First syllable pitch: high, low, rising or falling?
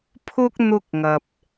high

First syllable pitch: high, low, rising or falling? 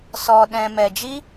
low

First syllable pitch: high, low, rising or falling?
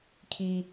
high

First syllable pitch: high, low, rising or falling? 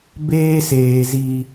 high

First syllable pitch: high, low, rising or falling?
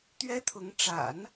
high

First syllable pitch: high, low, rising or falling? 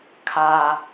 high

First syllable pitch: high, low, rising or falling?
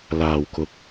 low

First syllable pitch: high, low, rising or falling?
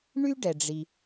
high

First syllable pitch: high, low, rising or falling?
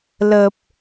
low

